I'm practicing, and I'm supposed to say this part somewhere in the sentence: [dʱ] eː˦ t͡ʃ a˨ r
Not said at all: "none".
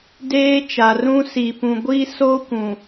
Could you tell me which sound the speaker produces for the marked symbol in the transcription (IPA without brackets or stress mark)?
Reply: d